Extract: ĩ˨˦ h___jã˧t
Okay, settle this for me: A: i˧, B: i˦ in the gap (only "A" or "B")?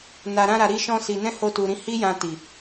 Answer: B